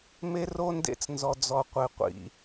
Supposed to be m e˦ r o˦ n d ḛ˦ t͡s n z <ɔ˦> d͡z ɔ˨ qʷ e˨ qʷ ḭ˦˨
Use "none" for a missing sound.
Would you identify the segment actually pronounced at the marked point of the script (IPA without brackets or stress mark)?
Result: ɔ˨